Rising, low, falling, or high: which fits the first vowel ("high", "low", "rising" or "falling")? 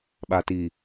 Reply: low